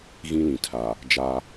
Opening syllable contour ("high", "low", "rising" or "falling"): high